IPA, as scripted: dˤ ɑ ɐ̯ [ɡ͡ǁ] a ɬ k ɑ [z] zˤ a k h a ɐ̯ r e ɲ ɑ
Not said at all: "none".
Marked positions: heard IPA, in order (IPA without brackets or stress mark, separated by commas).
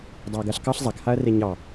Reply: ɡ, ɬ